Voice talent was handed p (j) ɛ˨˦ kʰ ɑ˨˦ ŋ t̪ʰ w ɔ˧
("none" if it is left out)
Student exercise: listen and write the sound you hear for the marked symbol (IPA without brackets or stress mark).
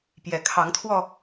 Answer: j